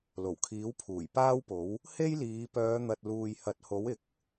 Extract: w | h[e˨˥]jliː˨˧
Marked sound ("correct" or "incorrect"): incorrect